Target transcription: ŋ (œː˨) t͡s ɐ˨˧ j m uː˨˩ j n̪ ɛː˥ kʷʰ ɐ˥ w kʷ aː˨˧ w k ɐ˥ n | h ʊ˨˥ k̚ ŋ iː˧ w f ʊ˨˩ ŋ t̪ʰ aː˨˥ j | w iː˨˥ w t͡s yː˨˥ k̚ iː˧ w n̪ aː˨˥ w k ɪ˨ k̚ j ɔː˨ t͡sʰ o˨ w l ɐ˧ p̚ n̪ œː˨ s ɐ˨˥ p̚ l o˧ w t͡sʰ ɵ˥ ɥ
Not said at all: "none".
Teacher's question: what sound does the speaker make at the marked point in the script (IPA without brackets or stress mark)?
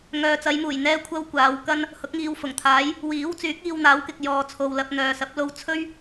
œː˨